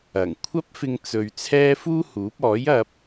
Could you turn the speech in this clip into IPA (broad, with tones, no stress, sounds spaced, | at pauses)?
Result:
ɐ˨˩ ŋ kʷʰ ɐ˥ p̚ f ɪ˧ ŋ t͡s ɵ˨ ɥ t͡sʰ ɛː˥ f uː˥ h uː˨˥ p̚ ɔː˨˥ j ɐ˧ p̚